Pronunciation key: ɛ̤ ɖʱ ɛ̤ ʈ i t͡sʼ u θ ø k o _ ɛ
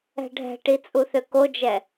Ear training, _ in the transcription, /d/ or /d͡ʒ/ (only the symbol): d͡ʒ